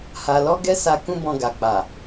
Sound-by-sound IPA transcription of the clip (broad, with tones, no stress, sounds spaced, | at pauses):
h a˧ l ɔ˦ ɡ ɛ˦ s a˧ k ũ˦ b ɔ̃˧ ɡ a˨ k͡p a˨